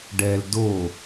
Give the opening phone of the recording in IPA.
ɖ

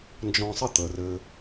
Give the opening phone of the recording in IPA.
n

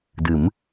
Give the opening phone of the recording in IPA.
d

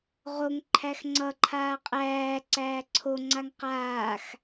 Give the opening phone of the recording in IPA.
ʁ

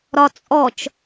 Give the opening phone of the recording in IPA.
ɾ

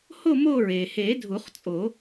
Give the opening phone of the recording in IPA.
h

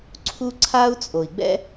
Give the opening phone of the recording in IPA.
ǀʰ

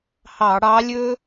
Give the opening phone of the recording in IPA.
h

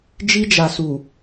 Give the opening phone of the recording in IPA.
d͡ʒ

